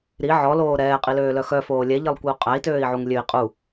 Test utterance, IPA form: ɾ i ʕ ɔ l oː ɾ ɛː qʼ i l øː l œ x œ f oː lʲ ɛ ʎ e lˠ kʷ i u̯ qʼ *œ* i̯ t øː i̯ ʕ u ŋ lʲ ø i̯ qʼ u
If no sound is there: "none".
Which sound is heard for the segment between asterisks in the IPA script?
æ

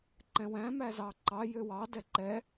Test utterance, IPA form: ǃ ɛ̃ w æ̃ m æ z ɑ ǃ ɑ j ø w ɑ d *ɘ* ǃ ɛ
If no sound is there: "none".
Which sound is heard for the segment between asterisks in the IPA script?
ɛ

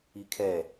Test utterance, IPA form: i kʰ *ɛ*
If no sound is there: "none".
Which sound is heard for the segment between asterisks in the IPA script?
ɛ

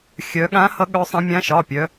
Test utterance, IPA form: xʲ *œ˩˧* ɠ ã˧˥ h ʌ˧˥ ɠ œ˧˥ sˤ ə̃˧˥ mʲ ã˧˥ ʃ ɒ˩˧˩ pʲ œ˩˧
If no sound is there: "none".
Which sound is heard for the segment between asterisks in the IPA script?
œ˩˧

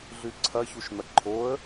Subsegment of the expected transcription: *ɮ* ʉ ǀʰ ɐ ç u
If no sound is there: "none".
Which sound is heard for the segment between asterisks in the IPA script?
ɮ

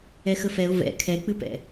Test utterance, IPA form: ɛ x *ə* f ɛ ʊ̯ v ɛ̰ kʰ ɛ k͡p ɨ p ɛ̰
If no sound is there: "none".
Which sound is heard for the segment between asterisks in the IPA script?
ə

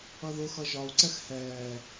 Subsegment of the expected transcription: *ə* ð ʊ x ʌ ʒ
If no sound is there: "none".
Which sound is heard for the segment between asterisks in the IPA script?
ʌ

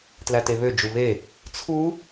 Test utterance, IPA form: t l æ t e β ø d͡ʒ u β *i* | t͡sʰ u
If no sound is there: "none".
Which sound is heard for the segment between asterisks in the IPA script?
e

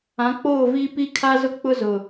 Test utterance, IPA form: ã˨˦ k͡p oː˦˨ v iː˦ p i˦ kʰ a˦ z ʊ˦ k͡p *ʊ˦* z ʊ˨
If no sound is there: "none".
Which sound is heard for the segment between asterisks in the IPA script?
ʊ˦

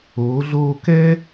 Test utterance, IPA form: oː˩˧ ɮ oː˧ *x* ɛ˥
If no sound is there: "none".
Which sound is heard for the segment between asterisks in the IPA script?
k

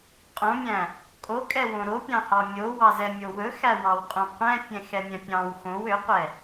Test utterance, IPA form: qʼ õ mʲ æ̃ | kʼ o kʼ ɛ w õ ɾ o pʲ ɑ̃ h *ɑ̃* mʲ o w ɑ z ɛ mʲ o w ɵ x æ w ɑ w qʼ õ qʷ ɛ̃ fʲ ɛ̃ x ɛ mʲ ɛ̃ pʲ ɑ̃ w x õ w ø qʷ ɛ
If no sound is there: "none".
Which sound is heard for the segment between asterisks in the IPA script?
ɑ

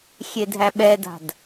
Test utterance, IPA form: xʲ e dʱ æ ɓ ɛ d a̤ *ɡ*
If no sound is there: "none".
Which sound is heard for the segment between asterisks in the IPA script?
d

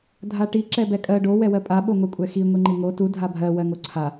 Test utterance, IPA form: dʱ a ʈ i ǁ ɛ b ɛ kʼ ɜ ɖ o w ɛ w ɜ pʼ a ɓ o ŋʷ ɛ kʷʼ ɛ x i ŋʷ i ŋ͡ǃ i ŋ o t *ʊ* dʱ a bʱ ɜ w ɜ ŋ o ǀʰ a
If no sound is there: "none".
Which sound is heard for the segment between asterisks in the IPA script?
u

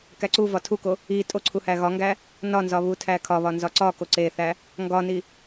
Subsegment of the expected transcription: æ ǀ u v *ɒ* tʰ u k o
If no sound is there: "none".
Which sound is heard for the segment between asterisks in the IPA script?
ɒ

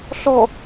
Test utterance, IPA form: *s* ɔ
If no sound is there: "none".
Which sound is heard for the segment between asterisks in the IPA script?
ɬ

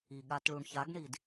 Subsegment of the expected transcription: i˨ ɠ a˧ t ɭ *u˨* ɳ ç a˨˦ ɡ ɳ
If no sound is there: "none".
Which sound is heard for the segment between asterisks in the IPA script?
u˨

